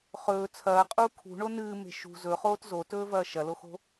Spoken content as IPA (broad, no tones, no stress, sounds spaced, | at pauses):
χ ɵː t͡sʰ ɐː qʼ uː kʰ ṳ ɳ o n ɨː m e̤ ʃ ṳ z ɵ χ oː t z o t ɵː v ɐː ʃ ɐ l o x o̤